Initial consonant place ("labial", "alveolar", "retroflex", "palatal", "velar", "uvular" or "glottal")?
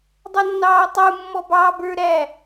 alveolar